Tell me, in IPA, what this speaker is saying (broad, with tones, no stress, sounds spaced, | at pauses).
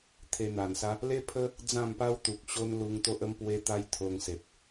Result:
t̪ʰ e˧ n̪ a˨˩ n s a˦ | l e˦ pʰ ə˦ | d͡z ã˥˧ m p a˦ w t̪ u˨ k̚ ɕ o˦ n l u˧ ŋ t̪ o˦ ʔ ə˦ m p w e˦ t̪ a˦ j t̪ʰ o˧ ŋ s e˨ p̚